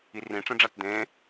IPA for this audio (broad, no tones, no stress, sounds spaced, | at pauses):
i r ĩ ʈ͡ʂ ẽ ɖ͡ʐ a t d̪ ẽ